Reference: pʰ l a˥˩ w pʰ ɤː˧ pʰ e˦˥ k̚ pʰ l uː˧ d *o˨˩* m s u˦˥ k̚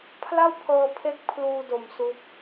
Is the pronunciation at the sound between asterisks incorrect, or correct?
correct